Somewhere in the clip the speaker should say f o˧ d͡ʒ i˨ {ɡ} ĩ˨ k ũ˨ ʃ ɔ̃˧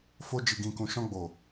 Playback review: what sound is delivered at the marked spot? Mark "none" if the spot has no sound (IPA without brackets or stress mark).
ɡ